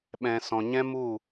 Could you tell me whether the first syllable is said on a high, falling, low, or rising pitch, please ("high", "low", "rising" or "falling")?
low